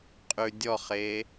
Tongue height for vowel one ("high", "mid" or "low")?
high